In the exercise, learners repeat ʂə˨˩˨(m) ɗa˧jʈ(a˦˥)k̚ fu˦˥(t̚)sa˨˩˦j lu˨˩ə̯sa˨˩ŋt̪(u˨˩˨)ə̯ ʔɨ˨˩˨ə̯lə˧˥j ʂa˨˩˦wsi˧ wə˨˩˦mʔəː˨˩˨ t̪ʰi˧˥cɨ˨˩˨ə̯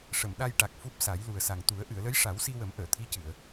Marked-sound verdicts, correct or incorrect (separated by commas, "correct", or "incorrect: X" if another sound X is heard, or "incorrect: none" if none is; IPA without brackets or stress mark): correct, incorrect: a˨˩, incorrect: p̚, incorrect: u˨˩˦